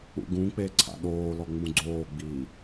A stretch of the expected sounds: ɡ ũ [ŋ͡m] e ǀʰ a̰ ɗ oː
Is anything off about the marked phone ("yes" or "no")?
yes